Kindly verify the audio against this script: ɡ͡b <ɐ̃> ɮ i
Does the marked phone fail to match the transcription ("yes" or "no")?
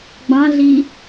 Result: yes